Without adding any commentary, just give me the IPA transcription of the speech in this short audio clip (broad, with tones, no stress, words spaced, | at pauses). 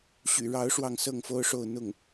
ɕy̰˨˩ɻɑ˧˥ʊ̯ ʂwɑ˥˧ŋsɤ˥˩ŋfo˥ʊ̯ʂo˥˧ʊ̯ n̪ʊ˥˩ŋ